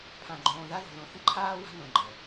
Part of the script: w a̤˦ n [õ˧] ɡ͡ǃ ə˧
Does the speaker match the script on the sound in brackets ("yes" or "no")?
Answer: yes